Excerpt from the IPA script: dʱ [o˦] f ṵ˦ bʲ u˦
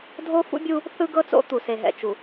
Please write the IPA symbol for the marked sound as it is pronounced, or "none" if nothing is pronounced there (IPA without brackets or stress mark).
o˦